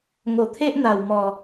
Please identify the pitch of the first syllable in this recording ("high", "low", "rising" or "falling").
low